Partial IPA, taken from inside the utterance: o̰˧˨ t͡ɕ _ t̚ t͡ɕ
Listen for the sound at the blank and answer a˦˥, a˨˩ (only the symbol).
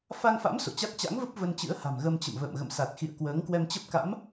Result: a˦˥